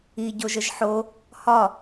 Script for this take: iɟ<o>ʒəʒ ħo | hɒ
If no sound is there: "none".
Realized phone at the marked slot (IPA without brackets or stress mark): o